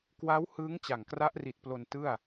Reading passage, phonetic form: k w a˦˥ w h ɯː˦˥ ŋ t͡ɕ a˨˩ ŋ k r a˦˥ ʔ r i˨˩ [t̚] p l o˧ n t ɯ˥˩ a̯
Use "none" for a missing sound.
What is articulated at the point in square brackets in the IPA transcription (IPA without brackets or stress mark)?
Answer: t̚